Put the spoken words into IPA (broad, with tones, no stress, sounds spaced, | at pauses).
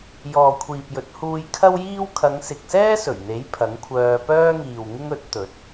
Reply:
j ɔː˨ kʷʰ iː˨ p̚ j ɵ˨˥ t̚ h uː˧ j kʰ ɐ˥ w j iː˥ w kʰ ɐ˨˧ ŋ s ɪ˨ k̚ s ɛː˥ s ɵ˨˩ ɥ n̪ e˨˥ j pʰ ɐ˨˥ ŋ kʷʰ œː˧ p œː˥ ŋ iː˨ w ŋ ɪ˥ ŋ ɵ˨˥ t̚ t̪ ɵ˨˥ t̚